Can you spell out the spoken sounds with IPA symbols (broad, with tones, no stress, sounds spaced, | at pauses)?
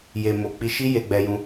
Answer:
j e˨ m o˨ k͡p i˧ ʃ i˦ j e˧ ɡ͡b ɛ˧ j ũ˧